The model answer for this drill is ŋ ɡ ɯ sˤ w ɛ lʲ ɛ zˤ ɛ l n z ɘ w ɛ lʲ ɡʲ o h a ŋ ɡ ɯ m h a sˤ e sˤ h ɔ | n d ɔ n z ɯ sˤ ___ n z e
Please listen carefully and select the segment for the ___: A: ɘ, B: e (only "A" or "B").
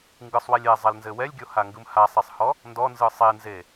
B